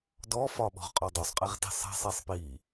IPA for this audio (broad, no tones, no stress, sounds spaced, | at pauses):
d ɔ f ɒ ɓ ɔ̤ ʁ qʼ ɒ dˤ o sˤ qʼ i ʁ t i̤ sˤ ɛ̤ sˤ i sˤ p i